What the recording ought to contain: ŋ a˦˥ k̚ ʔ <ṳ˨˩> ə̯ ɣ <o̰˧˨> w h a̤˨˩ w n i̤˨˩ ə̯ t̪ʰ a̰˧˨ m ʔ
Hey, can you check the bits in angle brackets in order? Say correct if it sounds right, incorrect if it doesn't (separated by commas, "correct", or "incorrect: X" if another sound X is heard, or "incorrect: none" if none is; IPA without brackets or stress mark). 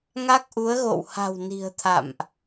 incorrect: u˨˦, correct